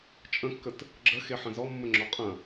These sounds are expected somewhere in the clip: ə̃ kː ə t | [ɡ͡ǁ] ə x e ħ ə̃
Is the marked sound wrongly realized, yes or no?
no